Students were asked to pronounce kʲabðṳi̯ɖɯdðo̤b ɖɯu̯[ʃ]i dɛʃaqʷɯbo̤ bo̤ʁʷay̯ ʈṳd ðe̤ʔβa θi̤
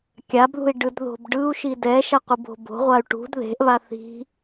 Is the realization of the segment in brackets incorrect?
no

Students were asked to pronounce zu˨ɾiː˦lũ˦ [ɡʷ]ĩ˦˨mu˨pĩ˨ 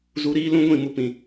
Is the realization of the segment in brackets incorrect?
no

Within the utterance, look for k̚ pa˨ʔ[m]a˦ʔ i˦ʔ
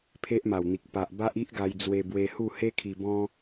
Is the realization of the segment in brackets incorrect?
yes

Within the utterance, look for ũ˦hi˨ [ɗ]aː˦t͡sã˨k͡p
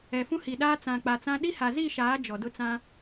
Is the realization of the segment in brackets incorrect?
no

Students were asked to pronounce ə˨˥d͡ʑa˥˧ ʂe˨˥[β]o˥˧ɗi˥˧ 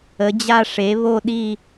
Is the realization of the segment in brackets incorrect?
no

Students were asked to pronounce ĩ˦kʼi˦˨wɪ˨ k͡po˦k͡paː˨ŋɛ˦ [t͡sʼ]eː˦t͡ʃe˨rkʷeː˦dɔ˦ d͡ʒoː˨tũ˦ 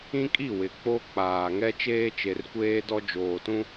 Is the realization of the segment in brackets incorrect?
yes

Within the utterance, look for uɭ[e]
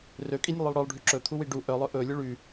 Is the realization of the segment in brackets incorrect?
yes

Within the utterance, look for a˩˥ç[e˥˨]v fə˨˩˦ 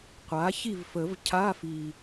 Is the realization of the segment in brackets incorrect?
yes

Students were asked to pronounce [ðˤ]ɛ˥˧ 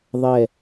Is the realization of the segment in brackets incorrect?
no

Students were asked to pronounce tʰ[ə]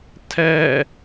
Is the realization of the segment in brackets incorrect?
yes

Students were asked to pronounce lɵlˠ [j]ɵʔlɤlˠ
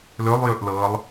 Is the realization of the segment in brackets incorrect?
no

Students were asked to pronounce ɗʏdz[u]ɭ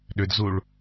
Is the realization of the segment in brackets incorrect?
no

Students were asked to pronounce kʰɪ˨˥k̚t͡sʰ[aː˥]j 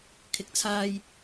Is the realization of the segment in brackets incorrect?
yes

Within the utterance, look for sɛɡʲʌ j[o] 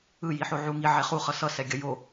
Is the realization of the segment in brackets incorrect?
no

